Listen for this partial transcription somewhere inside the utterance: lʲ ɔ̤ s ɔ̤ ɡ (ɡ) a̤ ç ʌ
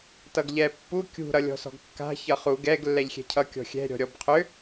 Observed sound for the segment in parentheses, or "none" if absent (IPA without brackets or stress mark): kː